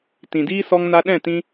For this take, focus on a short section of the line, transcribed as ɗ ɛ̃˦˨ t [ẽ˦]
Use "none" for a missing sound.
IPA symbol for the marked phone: ĩ˦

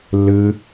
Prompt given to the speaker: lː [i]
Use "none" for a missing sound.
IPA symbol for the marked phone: ɨ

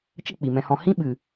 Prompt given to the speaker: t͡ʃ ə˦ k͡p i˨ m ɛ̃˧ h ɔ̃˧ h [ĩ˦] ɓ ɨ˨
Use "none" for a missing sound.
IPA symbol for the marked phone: ĩ˦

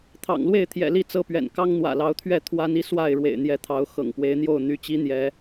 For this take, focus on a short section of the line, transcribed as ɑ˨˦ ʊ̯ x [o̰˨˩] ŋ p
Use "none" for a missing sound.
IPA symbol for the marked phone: ɤ̰˨˩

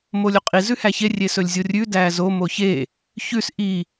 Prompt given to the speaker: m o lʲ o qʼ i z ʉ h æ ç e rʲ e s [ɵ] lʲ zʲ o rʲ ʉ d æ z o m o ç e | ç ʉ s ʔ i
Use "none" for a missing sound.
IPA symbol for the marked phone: ɵ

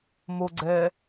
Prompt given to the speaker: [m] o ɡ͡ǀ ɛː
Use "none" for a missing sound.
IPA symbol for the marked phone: m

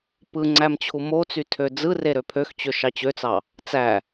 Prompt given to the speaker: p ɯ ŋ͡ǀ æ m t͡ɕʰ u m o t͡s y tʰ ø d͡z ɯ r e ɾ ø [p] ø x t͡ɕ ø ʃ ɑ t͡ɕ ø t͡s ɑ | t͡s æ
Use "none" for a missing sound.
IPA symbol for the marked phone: pʰ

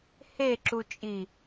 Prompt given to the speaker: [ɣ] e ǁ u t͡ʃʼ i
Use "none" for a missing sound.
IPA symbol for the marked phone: h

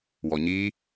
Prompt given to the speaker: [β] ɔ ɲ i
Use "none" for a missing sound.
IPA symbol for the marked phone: w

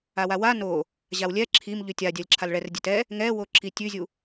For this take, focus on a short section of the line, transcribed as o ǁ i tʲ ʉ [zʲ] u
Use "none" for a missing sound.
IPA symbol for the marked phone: zʲ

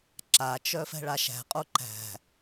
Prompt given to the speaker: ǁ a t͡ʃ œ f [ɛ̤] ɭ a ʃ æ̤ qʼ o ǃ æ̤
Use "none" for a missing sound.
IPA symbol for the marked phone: ɛ̤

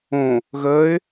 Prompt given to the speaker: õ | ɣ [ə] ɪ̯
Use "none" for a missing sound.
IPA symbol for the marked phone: əː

